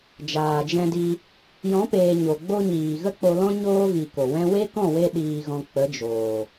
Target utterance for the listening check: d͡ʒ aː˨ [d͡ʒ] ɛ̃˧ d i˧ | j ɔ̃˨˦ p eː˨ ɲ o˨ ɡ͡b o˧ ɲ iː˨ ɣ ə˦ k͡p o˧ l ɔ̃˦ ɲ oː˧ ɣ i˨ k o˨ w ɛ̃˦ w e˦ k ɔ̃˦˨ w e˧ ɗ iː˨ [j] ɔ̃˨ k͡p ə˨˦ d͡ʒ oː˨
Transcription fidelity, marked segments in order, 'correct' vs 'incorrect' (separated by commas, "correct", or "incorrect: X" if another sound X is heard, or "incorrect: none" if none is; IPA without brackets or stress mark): correct, incorrect: ɣ